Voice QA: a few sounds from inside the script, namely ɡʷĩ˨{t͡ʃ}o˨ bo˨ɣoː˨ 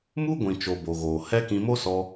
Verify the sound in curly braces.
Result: correct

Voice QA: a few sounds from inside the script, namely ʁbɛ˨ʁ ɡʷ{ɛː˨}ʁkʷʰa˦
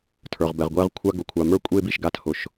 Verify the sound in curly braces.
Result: incorrect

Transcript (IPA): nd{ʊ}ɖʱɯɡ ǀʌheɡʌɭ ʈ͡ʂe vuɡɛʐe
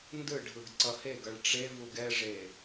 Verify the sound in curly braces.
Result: incorrect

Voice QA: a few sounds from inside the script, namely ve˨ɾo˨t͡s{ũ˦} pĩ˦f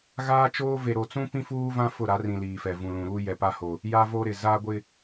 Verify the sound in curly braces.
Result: correct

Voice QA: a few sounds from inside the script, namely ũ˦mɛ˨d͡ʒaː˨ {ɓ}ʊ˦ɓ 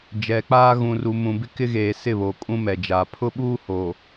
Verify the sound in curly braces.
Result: incorrect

